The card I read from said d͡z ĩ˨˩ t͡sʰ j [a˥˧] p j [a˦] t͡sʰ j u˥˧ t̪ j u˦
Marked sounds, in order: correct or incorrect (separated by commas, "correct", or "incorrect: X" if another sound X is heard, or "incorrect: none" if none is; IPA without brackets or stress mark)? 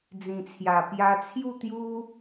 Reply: incorrect: a˨˩, incorrect: a˧